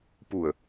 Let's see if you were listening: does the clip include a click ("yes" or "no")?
no